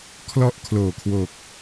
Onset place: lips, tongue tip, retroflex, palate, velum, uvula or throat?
velum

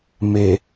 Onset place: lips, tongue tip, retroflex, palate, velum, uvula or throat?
lips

